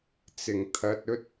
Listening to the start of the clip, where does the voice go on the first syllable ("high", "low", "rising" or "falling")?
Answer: low